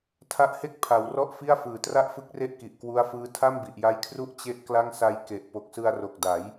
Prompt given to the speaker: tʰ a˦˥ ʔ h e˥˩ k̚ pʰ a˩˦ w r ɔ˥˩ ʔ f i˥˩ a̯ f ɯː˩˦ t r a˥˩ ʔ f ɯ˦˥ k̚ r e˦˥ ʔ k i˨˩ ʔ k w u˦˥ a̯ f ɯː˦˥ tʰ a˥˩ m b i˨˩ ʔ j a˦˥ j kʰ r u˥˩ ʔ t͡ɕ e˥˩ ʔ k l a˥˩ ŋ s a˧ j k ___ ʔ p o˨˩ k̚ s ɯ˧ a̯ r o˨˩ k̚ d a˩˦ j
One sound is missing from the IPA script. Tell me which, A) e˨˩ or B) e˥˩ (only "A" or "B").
A